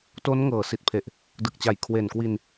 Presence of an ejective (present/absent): absent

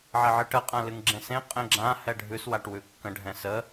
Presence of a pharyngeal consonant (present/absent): present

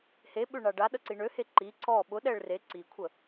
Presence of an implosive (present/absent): present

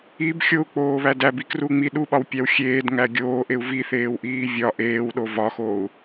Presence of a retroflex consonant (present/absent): absent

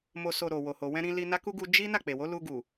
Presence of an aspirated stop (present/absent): absent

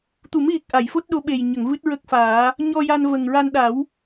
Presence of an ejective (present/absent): absent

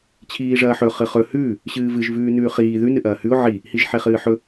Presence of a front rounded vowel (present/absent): absent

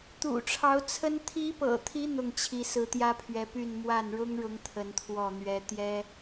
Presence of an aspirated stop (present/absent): present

